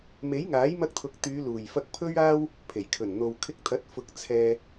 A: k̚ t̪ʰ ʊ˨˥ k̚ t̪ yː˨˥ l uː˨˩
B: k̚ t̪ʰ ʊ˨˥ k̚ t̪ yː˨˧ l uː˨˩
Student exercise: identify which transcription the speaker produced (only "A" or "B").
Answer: B